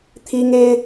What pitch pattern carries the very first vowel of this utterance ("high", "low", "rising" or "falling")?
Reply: high